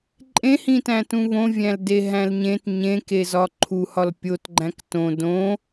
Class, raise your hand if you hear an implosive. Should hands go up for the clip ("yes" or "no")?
no